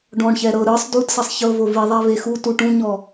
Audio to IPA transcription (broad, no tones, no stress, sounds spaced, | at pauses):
ɖ ɔ̃ ɳ ç ɛ ɾ ɤ ɾ ɯ sˤ d u d s ɛ sˤ ç ɤ v o v i ðˤ ɛ v e x u t u ʈ ũ ɲ ɔ